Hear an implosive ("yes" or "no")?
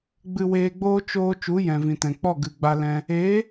no